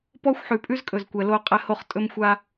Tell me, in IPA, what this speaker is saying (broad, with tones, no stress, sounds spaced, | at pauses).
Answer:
p ɔ˦ xʷ ħ ʉ˨ pʼ ʉ˦ z kʼ ɵ˨ z kʷ ɛ˨ l o˦ qʼ ɛ˦ h o˦ χ tʼ ɵ˦ m xʷ a˦